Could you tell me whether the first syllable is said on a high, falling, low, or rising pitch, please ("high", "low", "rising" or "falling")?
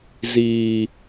low